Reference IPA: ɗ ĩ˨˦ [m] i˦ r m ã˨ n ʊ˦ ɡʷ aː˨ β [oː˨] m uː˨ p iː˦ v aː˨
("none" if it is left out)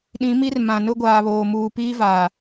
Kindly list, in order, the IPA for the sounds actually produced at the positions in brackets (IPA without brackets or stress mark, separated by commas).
m, oː˨